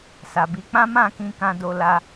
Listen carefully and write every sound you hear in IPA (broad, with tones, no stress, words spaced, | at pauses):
sa˨bi˨˦k͡pã˦ mã˦˨ kĩ˧kã˧ do˧la˧